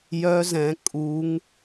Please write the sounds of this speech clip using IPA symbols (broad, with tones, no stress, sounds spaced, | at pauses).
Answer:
j œ˦˥ z ɛ̃˨˦ kʼ u˨˦ ŋ